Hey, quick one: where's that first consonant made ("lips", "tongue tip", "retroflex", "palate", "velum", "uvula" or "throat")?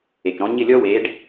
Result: velum